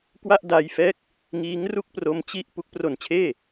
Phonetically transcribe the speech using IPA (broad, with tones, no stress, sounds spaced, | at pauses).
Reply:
k w a˥˩ ʔ d a˧ j f ɛː˥˩ k̚ | ŋ iː˦˥ ŋ r u˥˩ k̚ p r o˦˥ m t͡ɕ i˥˩ ʔ p u˦˥ k̚ p r o˧ n t͡ɕʰ eː˥˩